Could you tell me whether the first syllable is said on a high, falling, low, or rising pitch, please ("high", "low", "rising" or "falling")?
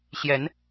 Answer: rising